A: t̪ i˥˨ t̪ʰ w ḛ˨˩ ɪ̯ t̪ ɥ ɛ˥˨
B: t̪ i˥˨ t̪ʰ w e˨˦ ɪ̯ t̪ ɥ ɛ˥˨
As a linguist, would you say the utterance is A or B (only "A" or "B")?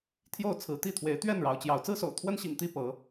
B